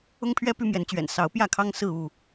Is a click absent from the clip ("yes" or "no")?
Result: yes